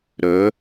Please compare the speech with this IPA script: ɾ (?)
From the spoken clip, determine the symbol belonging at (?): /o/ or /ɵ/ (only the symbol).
ɵ